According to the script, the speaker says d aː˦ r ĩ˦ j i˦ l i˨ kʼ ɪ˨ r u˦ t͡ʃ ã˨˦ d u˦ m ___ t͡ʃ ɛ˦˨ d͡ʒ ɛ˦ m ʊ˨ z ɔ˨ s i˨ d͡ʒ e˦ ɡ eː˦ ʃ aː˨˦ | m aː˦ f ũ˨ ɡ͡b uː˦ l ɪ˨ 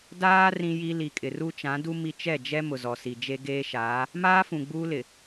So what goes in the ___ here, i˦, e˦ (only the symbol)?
i˦